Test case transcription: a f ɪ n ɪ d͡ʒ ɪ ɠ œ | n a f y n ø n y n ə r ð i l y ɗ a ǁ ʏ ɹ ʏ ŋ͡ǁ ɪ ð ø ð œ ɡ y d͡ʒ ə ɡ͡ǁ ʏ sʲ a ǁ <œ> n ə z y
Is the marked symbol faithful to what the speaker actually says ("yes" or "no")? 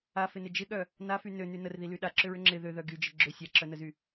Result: yes